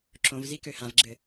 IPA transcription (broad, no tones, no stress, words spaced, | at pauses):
ǁõvzi køhãvɡ͡ǁɘ